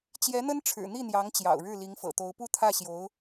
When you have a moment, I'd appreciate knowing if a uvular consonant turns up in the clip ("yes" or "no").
no